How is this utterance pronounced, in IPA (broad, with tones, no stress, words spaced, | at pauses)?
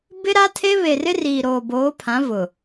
bɪ˦ ɾa˦tʰe˦ βe˨rɪ˦riː˨ ɾoː˨ boː˨˦pʰã˨˦ vʊ˨